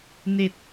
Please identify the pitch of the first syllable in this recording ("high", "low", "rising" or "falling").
low